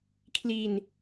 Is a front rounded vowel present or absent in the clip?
absent